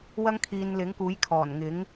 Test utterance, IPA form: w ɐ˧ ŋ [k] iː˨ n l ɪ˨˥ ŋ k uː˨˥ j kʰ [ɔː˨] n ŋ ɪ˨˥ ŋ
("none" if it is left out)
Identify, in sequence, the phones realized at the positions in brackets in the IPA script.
kʰ, ɔː˨˩

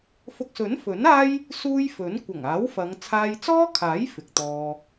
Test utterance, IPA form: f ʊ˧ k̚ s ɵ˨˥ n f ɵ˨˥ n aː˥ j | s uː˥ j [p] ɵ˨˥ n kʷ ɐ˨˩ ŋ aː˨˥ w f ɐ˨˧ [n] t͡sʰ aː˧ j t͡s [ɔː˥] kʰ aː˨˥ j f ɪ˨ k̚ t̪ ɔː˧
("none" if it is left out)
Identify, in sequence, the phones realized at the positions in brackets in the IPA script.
f, ŋ, ɔː˥

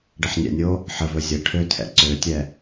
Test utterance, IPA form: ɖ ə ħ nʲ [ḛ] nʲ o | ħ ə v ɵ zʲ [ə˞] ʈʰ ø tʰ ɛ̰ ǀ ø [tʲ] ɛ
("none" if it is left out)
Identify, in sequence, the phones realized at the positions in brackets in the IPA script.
ɛ̰, ə, tʲ

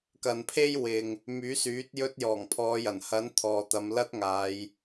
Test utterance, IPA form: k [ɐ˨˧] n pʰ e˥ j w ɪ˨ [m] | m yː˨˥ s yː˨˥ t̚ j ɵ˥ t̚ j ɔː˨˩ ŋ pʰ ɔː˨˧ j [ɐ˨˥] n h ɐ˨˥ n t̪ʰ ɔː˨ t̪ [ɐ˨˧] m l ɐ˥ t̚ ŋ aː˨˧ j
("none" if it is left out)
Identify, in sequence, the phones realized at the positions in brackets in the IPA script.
ɐ˨, ŋ, ɐ˨˩, ɐ˨˧

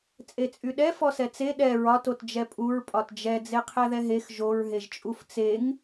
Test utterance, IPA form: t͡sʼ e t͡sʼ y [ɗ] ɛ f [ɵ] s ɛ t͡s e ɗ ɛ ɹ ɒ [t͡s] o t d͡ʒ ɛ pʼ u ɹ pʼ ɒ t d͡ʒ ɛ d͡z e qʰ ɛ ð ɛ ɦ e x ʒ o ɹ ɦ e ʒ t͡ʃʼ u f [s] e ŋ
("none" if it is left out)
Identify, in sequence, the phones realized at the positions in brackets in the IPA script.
ɗ, ɔ, t, t͡s

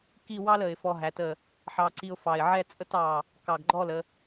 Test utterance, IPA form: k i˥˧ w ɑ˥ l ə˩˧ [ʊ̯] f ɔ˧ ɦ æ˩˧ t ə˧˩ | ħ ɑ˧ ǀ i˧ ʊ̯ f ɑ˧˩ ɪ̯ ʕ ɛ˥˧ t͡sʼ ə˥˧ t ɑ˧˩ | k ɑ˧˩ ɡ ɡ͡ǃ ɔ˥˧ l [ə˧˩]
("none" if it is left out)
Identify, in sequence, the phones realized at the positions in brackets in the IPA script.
ɪ̯, ə˩˧

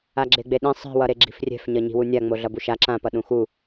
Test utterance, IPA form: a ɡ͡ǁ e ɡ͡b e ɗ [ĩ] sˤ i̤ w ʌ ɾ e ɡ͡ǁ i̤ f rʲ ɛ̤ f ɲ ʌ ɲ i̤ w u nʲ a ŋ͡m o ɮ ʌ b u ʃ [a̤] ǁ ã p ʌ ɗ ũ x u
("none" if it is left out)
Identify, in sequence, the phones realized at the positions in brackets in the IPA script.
ĩ, a

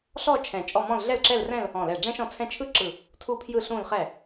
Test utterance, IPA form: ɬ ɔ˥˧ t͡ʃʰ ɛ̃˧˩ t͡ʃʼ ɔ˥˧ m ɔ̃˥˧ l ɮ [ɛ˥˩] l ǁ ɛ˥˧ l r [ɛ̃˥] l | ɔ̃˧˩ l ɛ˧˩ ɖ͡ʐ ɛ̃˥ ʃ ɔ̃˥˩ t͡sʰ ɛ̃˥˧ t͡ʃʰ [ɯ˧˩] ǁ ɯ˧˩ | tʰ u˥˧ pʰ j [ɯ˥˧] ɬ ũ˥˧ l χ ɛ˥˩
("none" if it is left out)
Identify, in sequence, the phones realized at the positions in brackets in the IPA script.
ɛ˥˩, ɛ̃˥˧, ɯ˥, ɯ˥˧

